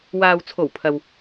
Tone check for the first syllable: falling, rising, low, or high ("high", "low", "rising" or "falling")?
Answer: low